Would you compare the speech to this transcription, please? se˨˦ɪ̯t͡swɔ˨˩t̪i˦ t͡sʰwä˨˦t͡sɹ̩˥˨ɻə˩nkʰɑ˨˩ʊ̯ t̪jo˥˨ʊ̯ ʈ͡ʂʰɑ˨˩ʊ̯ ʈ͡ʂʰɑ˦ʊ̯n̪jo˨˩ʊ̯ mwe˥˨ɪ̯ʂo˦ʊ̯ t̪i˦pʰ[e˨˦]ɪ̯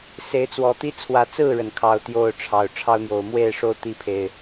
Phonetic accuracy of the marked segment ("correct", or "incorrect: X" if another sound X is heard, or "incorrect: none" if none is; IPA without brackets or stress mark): incorrect: e˨